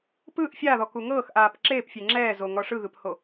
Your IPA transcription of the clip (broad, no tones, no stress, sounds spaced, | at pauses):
p ɯ ʔ fʲ a ð ɔ k u ŋ ɤː x ʔ aː p ǁ eː p fʲ e ŋ͡ǁ ɛː z o ŋ ɔ ʂ ɯ ɣ ɯ p h o